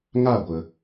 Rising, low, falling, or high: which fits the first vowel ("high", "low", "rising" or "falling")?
falling